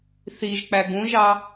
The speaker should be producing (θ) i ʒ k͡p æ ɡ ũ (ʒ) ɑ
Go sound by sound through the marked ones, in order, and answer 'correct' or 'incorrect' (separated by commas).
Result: correct, correct